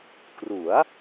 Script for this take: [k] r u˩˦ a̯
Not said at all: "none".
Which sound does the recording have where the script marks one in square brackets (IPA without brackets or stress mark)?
k